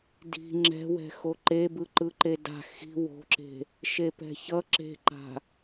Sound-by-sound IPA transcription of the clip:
di̤ ŋ͡ǁɛ̤wɛ̤ xoǃebɯ ǃɯǃeda̤ xi̤ wo̤ǁe̤ | ʃepɛ̤çʌ ǁe̤ǃa̤

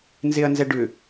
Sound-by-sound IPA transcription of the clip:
nzeɐ̯nzɛɖʏ

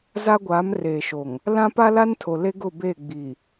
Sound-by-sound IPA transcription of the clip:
za˦ɡʷaː˨˦mreː˨ʃo˨ŋ | lã˦pa˦la˦n tʰo˨le˦ɡʊ˦˨ be˦˨ɡ͡bi˨

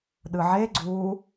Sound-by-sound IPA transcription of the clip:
ɗɯʕe ɡ͡ǀu

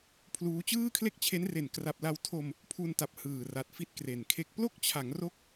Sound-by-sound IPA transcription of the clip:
pʰluː˦˥ t͡ɕɯː˥˩kʰle˥˩k̚t͡ɕʰe˦˥nre˨˩n kra˨˩p̚la˧w tʰo˧m | pʰu˧nta˨˩p̚ hɯː˨˩ra˨˩t̚ fi˥˩t̚kre˨˩nkʰe˥˩k̚ plo˥˩k̚t͡ɕʰa˩˦ŋ ro˥˩k̚

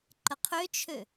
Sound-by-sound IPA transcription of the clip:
ǃəqʰøt͡ʃʰø

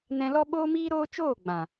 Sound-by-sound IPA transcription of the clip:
nɛ̃˧lɔ˦ ɓoː˦miː˦ɾoː˦t͡ʃoː˦˨ ɡ͡bã˨

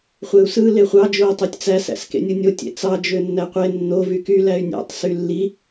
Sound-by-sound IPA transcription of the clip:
χʷeu̯sɯ leχʷɑ d͡ʒoi̯tˤotʲt͡sæ sæ̰skḛnʲɯnʲo tʲḛt͡sɑ d͡ʒønːæqʷe nːo vyky læy̯nʲæ̰tˤ sylːi

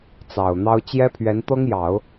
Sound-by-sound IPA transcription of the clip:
t͡sɑ˨˩ʊ̯n̪ɑ˥ʊ̯ t͡ɕjɛ˥pʰɥɛ˧˥nt̪ɤ˥ŋjɑ˨˩˦ʊ̯

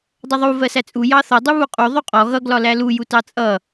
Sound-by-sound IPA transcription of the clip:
dˤʌðˤu vɜsæt͡sʼu jɑθɔ dˤuβuqʼu ðˤuqʼɔ ɣʌ ɡlɒlælu jutɑt͡sʼʌ

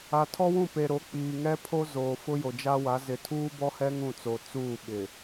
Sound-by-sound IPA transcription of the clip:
a˨tʰɔ˦wũ˦˨ pe˨ɾo˨˦k͡piː˨ŋɛ˦ pʰo˦zoː˨ fʊ˦jo˨d͡ʒa˦wa˨˦ zɪ˨tʰuː˦bɔ˦hɛ˦ ŋũ˦˨t͡so˨ t͡suː˦˨ɓɪ˨

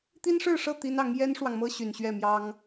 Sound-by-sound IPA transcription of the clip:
t̪i˥nʂɻ̩˥˧ʂɤ˥˩ t̪i˥nɑ˧˥ŋ jɛ˥nʂwɑ˨ŋmɤ˥ ɕy˨˩nɕɥɛ˥˩ mjɑ˥ŋ

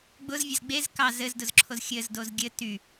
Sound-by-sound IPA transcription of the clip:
ɡ͡bʊz vʲɘzɡ͡bez kɑz ɘzdʊzǁʰoz xʲɘz dozɡʲɘ ty

